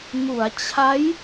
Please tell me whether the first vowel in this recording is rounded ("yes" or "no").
yes